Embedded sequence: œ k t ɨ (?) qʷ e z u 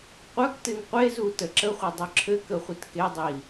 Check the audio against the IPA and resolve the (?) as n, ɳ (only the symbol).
n